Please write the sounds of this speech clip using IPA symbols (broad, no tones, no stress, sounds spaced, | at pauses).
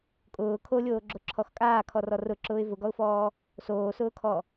kʼ ʊː kʰ o lʲ oː ɡ͡ǁ o ǁʰ ɔ x kʼ aː kʰ ɔ r ɔ r ʊ ǁ ʊː ɪ̯ v ʊ ɡ ɔ ʊ̯ f ɔː | s oː s ʊː kʰ ɔ